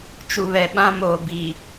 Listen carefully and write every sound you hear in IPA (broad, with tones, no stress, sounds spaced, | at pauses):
t͡ʃ u˨ β ɛ˨ ɓ ã˦ m oː˨ b iː˨